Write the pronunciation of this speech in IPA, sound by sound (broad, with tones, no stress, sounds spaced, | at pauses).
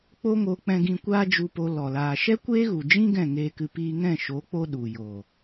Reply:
k͡p o˦ ŋ o˧ k͡p ɛ̃˧ ɡ ĩ˧ kʷ aː˦ d͡ʒ u˧ p o˧ l ɔ˨ l aː˧ ʃ ɛ˦ kʷ eː˦ ɣ u˨ d͡ʒ ĩ˦ ɡ ɛ̃˦˨ ŋ eː˧ k ɨ˧ p iː˧ ŋ ɛ̃˦˨ ʃ o˨˦ k͡p o˦ ɗ u˨ j o˨